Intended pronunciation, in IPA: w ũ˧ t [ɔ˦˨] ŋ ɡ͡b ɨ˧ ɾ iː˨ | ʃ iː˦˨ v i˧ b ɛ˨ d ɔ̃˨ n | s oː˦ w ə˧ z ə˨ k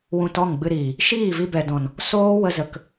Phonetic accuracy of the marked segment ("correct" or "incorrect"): correct